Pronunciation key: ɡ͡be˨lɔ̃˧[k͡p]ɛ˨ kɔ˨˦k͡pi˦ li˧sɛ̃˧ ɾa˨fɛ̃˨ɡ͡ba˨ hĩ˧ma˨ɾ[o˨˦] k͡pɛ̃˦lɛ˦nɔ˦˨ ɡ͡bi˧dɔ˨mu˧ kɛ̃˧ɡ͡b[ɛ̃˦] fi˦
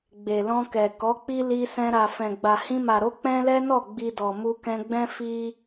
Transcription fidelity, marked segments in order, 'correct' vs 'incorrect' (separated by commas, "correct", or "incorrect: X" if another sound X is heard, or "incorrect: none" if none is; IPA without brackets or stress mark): incorrect: k, correct, correct